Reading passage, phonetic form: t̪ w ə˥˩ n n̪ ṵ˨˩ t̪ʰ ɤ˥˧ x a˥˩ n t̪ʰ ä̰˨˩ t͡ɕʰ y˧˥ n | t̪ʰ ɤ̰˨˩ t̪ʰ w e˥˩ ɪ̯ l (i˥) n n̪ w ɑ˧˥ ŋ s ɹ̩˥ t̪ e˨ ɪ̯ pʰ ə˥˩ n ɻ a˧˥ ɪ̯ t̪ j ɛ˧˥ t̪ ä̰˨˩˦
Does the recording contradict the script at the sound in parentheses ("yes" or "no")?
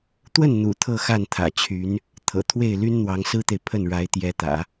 yes